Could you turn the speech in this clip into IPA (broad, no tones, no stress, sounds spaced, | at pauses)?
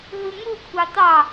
ɦ ɯ ŋ u kʷʰ ɑ t̪ ɑ